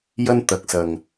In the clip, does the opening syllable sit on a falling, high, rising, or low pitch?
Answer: high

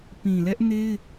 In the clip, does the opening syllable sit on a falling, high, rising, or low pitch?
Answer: low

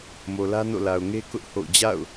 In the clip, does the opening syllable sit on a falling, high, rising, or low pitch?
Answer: low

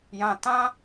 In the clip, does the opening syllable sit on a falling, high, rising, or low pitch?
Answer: low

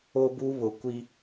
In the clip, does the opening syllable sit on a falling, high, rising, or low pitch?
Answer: high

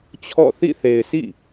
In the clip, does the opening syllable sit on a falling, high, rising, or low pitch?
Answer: falling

